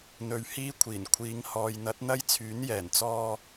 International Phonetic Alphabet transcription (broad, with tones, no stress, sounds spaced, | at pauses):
n̪ ɵ˨ ɥ h iː˥ kʷʰ iː˨˩ n kʷʰ iː˨˧ ŋ h ɔː˨ j n̪ ɐ˨˥ t̚ n̪ ɐ˥ j t͡sʰ yː˨˥ n j ɛː˨˩ n t͡s ɔː˧